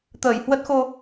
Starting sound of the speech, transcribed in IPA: t̪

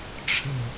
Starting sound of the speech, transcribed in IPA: ʈ͡ʂʰ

